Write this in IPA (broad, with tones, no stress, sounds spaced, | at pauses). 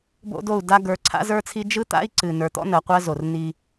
b o̰˦ d o˦˨ u̯ d a˦ ɡ ə˞˨˦ ǀʰ a̰˦ z ə˞˦ t͡sʰ i˦ d͡ʒ ɯ˦ t̪ a̰˦ i̯ ǀ ɨ˨ n ə˞˨ t̪ ɔ̰˦ n ɜ˨ qʷ ɜ˦ z o˨ r n i˦